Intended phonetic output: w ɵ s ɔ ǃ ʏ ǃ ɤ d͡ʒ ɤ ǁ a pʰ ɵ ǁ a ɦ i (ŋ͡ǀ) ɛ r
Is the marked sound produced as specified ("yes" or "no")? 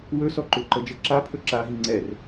yes